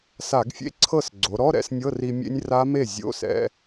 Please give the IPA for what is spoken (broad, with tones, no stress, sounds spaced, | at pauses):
s a˧˩˧ ɡ fʲ ḛ˧˥˧ ǀʰ ɤ˥˩ s ɡ͡ǀ o˩˧ ɾ ɔ˧˥˧ ɾ ɛ̰˧˥˧ s nʲ ɤ˧˥˧ r i˧ mʲ ḛ˦˥ nʲ r a˦˥ m e˥˩ zʲ o̰˧˥˧ s ɛ̰˧